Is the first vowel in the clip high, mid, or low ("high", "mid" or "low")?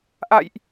low